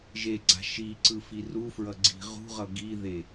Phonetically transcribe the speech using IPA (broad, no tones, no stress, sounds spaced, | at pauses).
ʒ e ɡ͡ǀ a̤ ʃ i ǀ ɯ f i r u f ɹ ʌ ɡ͡ǀ i̤ ʁ ṳ ʁ ʌ ɡ i ð e